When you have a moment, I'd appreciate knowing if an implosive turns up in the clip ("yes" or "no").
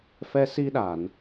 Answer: yes